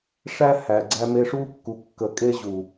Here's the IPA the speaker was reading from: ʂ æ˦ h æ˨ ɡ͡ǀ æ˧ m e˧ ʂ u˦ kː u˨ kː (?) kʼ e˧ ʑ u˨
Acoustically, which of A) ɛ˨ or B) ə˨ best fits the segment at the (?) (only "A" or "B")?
B